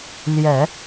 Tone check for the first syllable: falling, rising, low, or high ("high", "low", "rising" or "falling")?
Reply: low